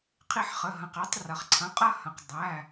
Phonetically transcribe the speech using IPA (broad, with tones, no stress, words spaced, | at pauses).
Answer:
qʰi˦˨ħχə˩˧˩ɦɐ̃˩˧˩q ɛ˩˧tˤrɐ˩χǀʰɐ̃˩˧˩ qʼɐ˦˨hɐ̃˩q dˤæ˩˧˩